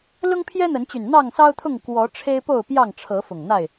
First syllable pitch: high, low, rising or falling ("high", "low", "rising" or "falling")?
high